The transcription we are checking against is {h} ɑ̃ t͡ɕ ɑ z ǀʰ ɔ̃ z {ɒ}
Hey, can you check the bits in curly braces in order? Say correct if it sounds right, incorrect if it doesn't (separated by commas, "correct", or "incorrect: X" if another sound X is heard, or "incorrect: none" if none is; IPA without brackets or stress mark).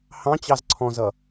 correct, incorrect: ʌ